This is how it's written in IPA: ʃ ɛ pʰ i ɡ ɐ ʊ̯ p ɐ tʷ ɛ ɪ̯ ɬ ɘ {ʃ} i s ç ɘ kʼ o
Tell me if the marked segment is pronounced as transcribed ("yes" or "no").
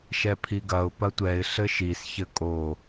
yes